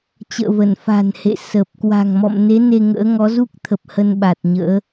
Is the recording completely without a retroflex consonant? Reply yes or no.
yes